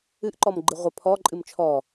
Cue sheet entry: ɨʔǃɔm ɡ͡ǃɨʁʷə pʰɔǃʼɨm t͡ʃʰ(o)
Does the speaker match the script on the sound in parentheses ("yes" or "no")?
no